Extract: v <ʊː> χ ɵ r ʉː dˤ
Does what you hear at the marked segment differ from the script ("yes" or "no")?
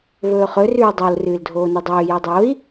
yes